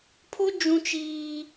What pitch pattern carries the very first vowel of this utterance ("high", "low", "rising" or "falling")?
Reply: high